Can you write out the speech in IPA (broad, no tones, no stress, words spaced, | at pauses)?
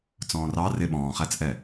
t͡sɔ̃ːrɑ rɪ ɓɔ̃ːχæt͡sʔɛ